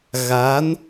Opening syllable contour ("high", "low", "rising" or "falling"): rising